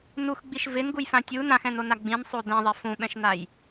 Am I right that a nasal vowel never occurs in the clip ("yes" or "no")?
no